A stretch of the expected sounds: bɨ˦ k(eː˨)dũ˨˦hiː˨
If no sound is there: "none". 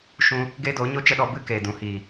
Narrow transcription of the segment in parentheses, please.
eː˨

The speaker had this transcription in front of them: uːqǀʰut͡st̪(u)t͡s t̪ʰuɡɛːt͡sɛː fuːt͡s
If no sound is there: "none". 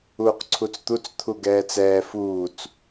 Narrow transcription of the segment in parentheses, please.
u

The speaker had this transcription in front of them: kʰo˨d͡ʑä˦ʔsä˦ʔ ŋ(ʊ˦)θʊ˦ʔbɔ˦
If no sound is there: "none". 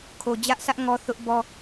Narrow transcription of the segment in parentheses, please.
ɔ˦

